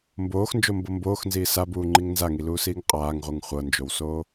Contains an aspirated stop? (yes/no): no